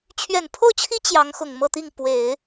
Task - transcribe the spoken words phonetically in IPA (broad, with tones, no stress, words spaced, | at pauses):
t͡ɕʰɥɛ˨˩npʰo˥˩ʊ̯t͡ɕʰi˥ t͡ɕjɑ˧˥ŋxʊ˨˩ŋmɤ˥˧t̪i˥˩ŋ pwe˨˩˦ɪ̯